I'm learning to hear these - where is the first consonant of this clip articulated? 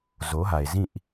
tongue tip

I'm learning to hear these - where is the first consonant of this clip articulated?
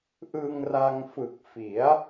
throat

